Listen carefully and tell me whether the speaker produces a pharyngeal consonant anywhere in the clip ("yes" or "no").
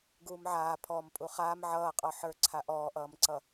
yes